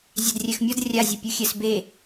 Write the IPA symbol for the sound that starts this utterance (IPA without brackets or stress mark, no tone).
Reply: zʲ